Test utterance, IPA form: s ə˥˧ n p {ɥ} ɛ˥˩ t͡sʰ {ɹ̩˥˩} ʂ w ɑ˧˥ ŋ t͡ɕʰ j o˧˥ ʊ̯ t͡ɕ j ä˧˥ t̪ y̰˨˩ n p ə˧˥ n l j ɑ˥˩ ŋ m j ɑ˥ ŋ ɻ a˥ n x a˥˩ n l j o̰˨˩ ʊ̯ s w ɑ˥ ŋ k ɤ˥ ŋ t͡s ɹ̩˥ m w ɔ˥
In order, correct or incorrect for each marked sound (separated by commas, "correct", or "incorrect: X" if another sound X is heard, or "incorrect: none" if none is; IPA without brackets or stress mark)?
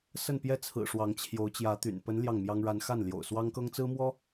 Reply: incorrect: j, incorrect: ɹ̩˨˩